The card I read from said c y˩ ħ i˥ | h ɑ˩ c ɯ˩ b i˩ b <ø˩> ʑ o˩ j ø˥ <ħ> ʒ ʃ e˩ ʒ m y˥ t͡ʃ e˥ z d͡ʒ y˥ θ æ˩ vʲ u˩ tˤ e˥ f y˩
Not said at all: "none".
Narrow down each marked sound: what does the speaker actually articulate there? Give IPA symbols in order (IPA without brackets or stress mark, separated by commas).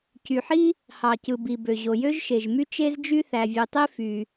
ø˩, none